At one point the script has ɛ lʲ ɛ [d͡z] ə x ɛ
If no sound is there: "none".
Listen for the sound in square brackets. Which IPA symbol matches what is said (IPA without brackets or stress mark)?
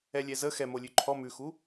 z